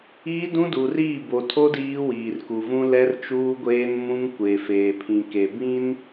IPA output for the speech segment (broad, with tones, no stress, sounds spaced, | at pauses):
iː˦ d ũ˦ d u˨ r iː˦˨ b o˨ tʰ o˦ d iː˦ w iː˨ r k u˨ v ũ˦ l ɛ˦ r t͡ʃ uː˦ ɡʷ eː˦ n m ũ˦ ŋ kʷ e˨ f eː˨ pʰ ĩ˨ k e˨ b ĩ˦ n